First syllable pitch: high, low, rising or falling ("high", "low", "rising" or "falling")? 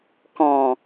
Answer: low